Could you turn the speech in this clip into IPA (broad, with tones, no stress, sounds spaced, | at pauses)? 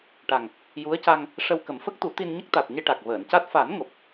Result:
ʈ a˨˩ ŋ | j u˧˥ ə̯ c a˧ ŋ | ʂ ə˧ w k ə˨˩˦ m f ə˦˥ k̚ t̪ u˨˩˦ t̪ i˧ n ɲ ə˦˥ k̚ t̪ a˨˩ t̚ ɲ e˧ ʈ a˨˩ k̚ v əː˨˩˨ n c a˦˥ t̚ f a˨˩˦ n ŋ o˨˩ p̚